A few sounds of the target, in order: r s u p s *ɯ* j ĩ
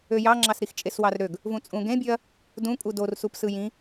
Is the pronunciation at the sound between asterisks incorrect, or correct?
correct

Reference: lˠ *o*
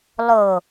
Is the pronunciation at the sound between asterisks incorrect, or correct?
correct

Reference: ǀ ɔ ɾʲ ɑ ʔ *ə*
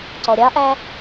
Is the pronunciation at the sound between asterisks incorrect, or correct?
incorrect: æ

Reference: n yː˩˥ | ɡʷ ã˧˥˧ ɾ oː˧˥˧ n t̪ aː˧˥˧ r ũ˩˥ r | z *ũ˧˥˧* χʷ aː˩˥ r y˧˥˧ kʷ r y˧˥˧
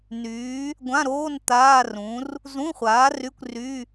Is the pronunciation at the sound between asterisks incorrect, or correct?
correct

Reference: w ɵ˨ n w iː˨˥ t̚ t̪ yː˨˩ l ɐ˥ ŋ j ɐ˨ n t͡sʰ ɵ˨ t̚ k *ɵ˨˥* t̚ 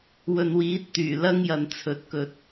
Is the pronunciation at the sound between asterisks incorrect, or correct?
incorrect: ɵ˨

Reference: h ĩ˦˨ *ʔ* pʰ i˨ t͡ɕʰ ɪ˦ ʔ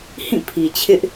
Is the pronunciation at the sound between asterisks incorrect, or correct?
incorrect: none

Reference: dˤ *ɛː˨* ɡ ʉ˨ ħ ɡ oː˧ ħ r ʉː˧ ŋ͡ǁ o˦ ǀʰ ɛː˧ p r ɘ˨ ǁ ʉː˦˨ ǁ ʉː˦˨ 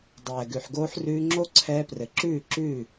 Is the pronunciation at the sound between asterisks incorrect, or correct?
correct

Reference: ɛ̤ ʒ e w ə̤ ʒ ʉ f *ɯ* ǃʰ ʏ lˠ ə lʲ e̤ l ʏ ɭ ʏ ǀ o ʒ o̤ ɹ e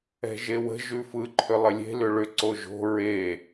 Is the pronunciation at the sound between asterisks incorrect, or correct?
correct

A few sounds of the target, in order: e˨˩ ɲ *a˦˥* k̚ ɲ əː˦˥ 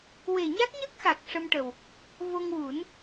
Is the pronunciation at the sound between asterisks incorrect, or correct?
correct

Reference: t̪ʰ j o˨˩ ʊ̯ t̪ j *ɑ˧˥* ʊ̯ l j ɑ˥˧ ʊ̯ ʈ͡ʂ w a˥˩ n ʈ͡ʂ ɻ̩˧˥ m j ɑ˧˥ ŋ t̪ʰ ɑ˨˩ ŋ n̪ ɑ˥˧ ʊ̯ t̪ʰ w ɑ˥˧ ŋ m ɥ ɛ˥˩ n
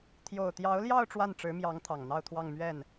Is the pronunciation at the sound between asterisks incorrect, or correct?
correct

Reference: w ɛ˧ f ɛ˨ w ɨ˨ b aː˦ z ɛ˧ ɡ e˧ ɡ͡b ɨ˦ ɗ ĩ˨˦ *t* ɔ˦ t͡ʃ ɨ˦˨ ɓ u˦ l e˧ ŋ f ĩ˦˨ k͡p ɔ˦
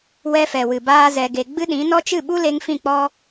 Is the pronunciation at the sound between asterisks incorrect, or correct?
incorrect: n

